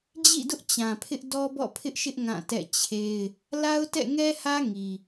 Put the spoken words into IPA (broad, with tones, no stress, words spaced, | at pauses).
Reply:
d͡ʑḭ˦˨dʊ˦ʔ t͡ɕã˨pʰɪ˦ʔ dɔ˦bɔ̰˦˨pʰɪ˦ʔʃɪ˦ʔ ŋã˦˨tɛ̰˦˨t͡ɕʰe˦ɪ̯ | la˦ʊ̯tɛ̰˦˨ŋɛ˦hä˦ ŋi˨